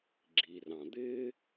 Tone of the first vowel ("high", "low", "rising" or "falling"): low